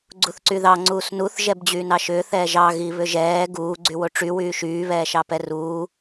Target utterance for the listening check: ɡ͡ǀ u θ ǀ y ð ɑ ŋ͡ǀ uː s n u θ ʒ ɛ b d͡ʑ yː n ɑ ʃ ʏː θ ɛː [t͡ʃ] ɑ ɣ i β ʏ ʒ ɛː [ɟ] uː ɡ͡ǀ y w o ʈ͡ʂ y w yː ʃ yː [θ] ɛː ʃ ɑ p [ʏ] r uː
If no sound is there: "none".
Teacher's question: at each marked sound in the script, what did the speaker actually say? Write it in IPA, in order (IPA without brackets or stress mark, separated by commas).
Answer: ʒ, ɡ, β, ɛ